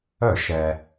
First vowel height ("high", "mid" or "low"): mid